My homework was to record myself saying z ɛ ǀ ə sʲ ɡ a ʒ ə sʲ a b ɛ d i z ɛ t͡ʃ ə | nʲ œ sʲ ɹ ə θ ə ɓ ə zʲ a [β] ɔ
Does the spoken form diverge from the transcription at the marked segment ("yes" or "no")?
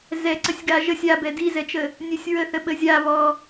no